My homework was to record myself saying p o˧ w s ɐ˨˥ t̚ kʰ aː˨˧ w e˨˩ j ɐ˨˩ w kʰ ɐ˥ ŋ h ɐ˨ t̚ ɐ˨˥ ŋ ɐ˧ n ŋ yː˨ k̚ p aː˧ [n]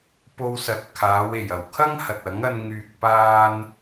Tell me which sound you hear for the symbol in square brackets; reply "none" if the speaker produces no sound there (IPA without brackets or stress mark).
n